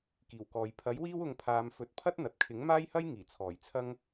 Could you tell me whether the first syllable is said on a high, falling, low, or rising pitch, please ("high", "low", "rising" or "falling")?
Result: low